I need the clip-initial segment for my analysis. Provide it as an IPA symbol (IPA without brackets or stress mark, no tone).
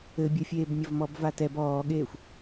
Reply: ɘ